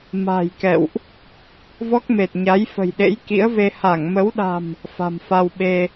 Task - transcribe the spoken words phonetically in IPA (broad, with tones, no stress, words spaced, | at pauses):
ma̤˨˩j kɛ̰˧˨wʔ | vɔ˦˥k̚me˨˩t̚ ɲa˨˦j fə̤˨˩jɗḛ˧˥jkḭ˧˥ə̯ve˧ ha˧˩ŋmə˨˦wɗa̤˨˩m | fa̤˨˩mfa˧wɓe˧